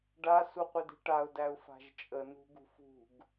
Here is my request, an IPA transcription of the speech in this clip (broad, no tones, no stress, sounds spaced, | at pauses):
ɖ a s u qʷ i d̪ i̤ ʈ a ʊ̯ d æ ʊ̯ f a̤ ʒ t͡ʃʼ ə n ṳ ɡ ṳ f ṳ ɡ